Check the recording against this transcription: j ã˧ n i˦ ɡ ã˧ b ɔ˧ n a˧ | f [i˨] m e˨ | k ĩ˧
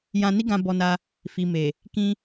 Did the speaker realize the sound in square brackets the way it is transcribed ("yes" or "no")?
yes